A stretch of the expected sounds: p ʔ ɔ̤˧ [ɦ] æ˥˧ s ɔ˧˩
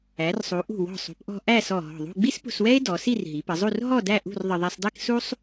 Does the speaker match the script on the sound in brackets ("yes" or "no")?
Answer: no